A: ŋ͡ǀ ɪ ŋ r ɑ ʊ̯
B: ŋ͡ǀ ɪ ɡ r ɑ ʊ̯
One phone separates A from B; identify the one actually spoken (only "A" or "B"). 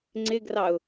B